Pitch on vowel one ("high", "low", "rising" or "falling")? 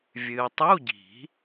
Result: low